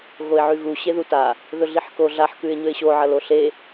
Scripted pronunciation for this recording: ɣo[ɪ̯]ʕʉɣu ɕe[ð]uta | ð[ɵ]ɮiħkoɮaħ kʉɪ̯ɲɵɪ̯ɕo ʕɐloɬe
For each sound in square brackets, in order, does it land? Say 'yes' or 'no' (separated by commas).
yes, yes, yes